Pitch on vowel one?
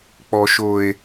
low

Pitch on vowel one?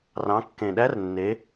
rising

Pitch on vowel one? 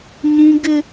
high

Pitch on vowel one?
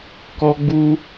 high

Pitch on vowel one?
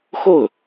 falling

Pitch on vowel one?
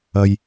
low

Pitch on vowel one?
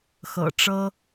low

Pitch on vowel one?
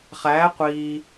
rising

